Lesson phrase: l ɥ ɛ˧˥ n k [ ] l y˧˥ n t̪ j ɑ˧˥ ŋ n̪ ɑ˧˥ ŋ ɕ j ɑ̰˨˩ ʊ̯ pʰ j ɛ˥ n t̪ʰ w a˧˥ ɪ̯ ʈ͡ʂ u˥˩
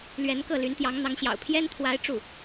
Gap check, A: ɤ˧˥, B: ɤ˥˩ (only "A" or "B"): B